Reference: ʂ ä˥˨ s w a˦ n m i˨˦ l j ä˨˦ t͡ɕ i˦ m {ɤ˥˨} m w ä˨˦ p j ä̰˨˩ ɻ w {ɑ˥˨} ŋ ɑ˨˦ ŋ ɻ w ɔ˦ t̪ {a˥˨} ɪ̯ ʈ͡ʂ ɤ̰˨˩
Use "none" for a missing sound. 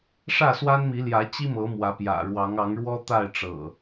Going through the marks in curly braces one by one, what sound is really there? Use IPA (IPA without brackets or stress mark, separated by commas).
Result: ɤ˨˦, ɑ˨˦, a˥˨